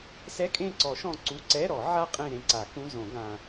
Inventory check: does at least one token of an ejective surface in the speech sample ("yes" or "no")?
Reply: yes